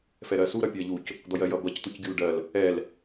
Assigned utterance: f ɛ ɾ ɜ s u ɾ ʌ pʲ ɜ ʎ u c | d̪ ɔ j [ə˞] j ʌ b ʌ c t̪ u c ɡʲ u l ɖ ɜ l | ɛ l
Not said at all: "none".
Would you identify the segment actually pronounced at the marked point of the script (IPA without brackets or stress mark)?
ɜ